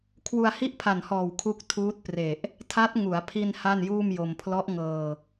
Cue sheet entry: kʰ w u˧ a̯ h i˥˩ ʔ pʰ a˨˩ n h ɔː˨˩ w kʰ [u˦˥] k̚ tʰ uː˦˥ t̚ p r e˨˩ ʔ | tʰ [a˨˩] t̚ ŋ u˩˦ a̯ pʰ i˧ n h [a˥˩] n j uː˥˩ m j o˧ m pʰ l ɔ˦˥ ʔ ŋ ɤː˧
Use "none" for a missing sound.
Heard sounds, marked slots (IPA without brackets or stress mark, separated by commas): u˦˥, a˦˥, a˥˩